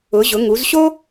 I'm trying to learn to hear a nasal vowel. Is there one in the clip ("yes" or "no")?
no